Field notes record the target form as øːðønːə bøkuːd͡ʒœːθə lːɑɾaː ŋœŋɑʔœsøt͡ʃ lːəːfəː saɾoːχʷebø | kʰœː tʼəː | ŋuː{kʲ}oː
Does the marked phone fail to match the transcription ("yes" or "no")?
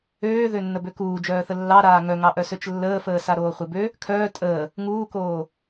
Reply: yes